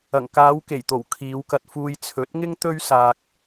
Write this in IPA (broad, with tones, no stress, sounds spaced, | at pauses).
ɐ˨˩ ŋ k aː˨˧ w k e˨˩ j t̪ o˨˩ w kʰ iː˨˧ w k ɐ˧ t̚ f uː˧ j t͡sʰ ɵ˨˥ t̚ ŋ ɪ˥ ŋ t̪ ɵ˥ ɥ s aː˧ k̚